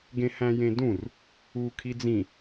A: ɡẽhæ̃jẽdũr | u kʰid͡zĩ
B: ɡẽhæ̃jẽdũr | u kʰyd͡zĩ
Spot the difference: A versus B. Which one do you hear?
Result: A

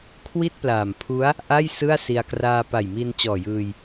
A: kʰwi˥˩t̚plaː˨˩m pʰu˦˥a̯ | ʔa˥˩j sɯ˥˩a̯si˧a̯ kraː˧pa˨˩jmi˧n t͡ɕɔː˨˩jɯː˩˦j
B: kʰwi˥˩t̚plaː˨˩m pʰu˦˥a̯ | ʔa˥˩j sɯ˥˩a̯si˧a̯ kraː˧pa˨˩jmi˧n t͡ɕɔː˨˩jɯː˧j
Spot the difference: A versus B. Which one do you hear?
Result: B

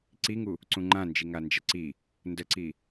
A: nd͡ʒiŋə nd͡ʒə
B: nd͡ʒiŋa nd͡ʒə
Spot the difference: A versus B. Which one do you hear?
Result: B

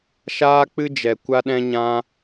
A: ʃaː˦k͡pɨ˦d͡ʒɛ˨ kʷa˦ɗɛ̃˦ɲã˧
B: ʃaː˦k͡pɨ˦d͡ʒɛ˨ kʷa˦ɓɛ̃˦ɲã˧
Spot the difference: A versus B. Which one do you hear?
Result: A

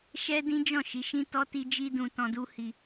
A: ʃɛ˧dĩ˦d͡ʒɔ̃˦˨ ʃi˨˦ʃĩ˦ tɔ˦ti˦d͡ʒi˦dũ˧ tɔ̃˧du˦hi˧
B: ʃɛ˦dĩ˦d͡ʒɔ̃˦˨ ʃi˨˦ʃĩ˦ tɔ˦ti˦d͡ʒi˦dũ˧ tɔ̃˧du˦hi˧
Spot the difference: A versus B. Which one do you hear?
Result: B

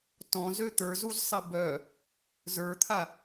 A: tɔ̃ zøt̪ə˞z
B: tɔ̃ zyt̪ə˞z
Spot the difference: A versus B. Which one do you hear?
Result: A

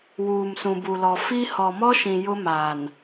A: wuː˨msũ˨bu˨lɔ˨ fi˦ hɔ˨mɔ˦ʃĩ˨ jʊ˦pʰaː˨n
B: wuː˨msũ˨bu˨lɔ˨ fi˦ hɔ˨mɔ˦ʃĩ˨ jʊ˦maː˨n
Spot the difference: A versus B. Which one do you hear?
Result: B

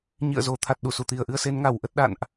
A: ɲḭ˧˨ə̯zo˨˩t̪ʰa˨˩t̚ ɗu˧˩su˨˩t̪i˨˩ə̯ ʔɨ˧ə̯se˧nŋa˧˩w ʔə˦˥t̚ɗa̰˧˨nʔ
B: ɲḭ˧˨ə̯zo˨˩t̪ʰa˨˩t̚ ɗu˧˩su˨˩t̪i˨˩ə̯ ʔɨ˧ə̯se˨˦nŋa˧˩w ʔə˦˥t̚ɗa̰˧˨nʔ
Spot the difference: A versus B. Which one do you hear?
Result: B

